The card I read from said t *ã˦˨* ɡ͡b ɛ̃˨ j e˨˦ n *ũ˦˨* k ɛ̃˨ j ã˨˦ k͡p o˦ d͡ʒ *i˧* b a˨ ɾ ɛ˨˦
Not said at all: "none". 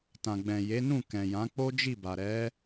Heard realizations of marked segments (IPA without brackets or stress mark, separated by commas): ã˨, ũ˦˨, i˦˨